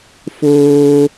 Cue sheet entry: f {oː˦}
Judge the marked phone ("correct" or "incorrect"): correct